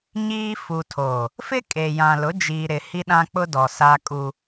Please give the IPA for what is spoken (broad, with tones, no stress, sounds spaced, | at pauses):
ɲ iː˦ f u˨ tʰ oː˨ | f ɪ˦ kʼ e˨ j ã˨ l ʊ˨˦ d͡ʒ iː˨ ɾ ɪ˨ h i˦ ɗ ã˦ k͡p ʊ˦ d ɔ˨ s a˦ kʼ u˦